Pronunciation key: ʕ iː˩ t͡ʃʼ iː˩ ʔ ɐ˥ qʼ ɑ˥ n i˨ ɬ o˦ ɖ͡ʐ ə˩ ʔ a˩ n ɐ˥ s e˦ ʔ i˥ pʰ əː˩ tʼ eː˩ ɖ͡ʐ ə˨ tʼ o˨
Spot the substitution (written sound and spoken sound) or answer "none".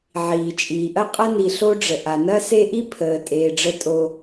ɑ˥ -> ɐ˥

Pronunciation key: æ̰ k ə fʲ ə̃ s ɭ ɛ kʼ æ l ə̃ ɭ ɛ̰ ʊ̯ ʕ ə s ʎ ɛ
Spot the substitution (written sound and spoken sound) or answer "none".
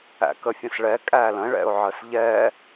none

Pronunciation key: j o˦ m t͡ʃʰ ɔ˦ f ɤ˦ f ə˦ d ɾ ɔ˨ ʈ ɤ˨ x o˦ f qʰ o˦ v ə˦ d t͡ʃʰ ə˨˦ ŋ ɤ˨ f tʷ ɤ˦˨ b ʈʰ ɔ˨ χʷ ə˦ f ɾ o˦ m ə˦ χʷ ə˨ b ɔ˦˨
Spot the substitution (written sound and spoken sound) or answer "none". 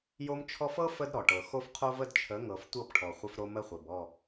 none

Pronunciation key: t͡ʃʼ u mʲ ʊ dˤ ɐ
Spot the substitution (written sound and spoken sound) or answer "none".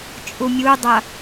ʊ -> u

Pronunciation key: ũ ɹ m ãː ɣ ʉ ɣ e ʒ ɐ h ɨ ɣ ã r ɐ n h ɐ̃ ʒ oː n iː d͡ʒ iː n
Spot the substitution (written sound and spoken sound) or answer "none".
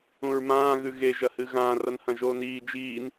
none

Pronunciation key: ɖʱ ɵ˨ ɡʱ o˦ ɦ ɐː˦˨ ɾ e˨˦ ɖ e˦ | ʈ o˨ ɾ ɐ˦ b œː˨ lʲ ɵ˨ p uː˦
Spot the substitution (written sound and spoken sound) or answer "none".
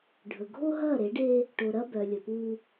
none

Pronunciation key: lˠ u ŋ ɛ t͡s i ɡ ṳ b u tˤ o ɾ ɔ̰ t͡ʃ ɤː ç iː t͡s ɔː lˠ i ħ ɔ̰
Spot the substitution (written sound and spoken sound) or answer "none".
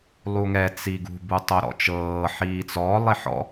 ç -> ħ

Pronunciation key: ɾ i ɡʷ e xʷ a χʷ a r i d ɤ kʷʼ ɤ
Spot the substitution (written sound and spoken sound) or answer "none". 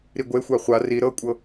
d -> ɾ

